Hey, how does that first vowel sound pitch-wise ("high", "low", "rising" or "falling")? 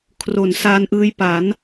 low